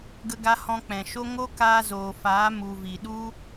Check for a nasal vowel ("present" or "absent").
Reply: present